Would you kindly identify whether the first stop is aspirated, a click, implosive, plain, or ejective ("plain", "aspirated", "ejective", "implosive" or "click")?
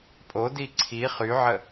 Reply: ejective